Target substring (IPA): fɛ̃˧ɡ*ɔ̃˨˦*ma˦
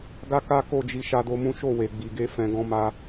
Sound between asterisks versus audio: incorrect: ɔ̃˦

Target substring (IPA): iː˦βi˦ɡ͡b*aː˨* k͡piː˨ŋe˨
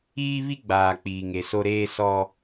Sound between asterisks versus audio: correct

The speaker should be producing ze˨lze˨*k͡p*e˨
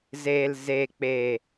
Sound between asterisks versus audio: correct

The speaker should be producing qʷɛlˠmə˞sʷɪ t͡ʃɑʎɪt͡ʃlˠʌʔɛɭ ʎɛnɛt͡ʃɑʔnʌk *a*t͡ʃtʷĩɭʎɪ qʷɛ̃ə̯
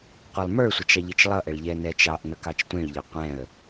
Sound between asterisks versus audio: incorrect: ɑ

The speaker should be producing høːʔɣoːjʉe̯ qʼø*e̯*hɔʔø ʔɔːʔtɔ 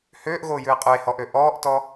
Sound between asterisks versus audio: correct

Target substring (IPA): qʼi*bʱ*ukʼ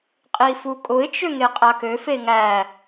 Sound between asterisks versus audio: incorrect: f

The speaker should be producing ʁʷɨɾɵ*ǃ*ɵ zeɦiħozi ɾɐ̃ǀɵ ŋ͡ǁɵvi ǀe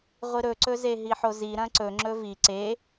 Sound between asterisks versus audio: incorrect: ǀ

